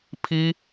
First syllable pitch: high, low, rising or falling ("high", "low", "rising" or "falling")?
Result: high